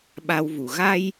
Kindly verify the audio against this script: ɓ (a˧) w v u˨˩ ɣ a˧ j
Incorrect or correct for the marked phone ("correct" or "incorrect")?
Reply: correct